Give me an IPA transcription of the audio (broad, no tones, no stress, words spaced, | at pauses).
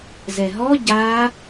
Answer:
zɛɦɔ ɟa